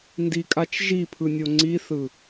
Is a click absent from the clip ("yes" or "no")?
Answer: no